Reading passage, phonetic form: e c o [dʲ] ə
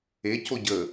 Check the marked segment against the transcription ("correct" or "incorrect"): incorrect